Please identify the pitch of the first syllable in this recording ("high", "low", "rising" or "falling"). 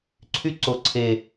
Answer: high